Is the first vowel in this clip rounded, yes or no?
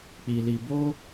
no